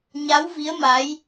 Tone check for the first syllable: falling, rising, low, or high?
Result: rising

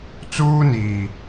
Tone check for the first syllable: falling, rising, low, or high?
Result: high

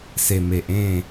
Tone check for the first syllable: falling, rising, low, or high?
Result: low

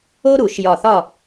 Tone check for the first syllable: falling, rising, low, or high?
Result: high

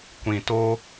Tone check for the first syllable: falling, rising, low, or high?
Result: low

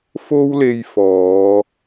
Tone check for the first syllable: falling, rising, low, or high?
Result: high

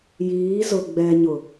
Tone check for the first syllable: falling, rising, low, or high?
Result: rising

